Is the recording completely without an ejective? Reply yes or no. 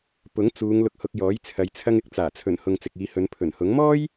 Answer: yes